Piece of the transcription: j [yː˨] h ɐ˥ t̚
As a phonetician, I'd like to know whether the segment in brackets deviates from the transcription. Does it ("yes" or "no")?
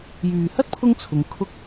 no